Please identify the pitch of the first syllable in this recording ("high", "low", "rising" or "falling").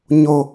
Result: low